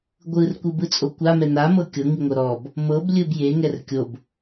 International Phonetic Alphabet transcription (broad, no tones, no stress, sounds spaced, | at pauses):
ɡʷ ɯ r kʷ ɯ b ɯ t͡sʼ o kʷ a m ɛ n a m ɤ kʲ ɤ ŋ i ŋʷ ɤ ɾ ɔ b | m ɤ b lʲ ɯ b j e ŋ ɛ r kʲ o b